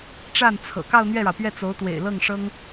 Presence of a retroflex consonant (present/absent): present